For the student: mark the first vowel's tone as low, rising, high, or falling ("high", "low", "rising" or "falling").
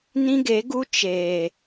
high